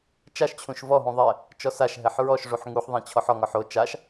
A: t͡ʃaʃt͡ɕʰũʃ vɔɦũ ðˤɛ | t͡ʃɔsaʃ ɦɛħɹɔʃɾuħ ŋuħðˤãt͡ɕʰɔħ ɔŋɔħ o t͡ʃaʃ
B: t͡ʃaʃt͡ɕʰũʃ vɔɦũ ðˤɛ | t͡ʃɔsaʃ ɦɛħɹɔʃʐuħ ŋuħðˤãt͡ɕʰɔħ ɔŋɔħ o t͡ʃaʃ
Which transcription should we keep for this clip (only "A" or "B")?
B